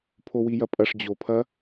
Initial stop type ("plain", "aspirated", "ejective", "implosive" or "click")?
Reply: aspirated